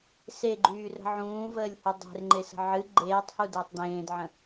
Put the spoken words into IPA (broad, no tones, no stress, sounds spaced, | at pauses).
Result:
s e ɡ͡ǃ yː r ə̤ ʕ ũː v əː lʲ h ɨ dˤ e̤ r ŋ͡ǃ e s ə̤ ʕ ɨ ɡ͡ǃ eː tˤ h u d əː tˤ d ẽː d ʕ ə̃